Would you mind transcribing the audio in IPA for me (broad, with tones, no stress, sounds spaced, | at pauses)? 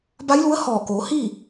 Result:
b a˧˥ j l u˧˥ ə̯ h ɔː˧˩ k oː˩˧ h i˥˨